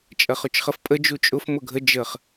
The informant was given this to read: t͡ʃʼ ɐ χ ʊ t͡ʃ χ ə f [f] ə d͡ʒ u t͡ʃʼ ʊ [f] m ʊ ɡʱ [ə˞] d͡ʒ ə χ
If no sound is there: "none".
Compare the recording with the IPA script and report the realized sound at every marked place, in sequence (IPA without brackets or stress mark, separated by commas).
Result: pʼ, f, ə